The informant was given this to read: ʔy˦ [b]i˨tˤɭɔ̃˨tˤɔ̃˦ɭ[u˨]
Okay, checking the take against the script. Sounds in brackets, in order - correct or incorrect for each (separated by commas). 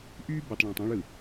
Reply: correct, incorrect